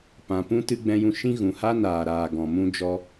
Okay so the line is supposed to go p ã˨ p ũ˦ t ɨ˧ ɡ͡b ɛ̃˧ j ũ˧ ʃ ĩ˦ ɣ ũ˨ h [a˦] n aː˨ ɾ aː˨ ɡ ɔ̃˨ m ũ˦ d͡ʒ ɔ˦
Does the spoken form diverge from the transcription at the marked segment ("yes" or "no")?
no